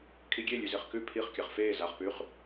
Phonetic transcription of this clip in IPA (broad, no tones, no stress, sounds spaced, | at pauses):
kʰ i ɡʲ e lʲ ʉ z e χ k ʉ pʰ i χ kʲ a χ f eː z a χ p ʉ χ